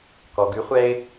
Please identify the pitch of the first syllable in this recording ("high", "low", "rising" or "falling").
low